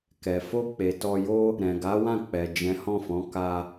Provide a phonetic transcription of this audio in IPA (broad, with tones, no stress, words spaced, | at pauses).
kɛ˨ fo˧ k͡pe˨ tɔ˧jo˦ | ɾɛ̃˨ɡa˨˦wã˦˨k͡pɛ˨ d͡ʒɛ̃˨˦hɔ̃˦˨fɔ̃˨˦ ka˧